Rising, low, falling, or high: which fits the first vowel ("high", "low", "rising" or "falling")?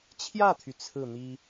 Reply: falling